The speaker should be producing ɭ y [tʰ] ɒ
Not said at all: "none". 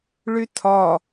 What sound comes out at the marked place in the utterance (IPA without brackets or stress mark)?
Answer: tʰ